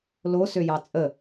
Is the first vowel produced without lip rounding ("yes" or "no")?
no